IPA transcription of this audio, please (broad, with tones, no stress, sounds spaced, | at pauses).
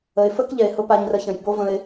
ə˨ ɪ̯ f ə˦ k ʎ ɛ˨ ɪ̯ h ʊ˧ p a˧ ɲ r ə˧ ç ə̃˨ j b o˦ v ə̃˧ ɪ̯